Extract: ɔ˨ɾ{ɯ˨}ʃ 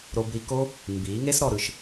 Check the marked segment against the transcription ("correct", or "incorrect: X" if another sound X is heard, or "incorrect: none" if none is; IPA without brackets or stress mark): correct